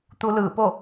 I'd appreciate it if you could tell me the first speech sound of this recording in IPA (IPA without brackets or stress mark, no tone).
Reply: t̪